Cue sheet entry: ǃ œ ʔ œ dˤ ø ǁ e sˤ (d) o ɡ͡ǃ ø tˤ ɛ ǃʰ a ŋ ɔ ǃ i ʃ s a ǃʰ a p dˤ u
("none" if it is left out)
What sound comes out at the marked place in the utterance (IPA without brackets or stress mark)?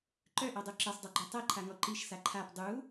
dˤ